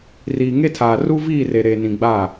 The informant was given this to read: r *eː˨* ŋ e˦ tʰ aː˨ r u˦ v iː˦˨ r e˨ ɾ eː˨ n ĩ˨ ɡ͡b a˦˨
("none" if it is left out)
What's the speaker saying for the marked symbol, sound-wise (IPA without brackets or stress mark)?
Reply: iː˨